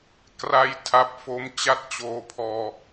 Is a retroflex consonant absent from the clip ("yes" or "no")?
yes